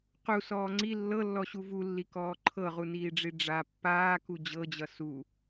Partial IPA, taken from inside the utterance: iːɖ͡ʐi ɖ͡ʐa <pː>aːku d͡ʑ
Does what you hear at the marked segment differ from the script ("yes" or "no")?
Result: no